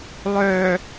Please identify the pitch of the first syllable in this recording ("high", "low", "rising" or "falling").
low